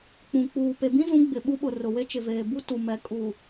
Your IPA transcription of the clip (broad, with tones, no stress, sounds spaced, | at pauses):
k͡p ũ˨ k͡p uː˨ p e˨ b ĩ˦ z ũ˨˦ ɡ͡b ɪ˨ ɓ u˦ ɓ ʊ˨ r ʊ˨ w e˦ t͡ʃ ɪ˨ v eː˨ b u˦ t u˨ m ɛ˨ kʼ u˨